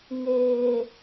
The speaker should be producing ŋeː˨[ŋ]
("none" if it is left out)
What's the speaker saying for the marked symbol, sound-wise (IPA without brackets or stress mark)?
none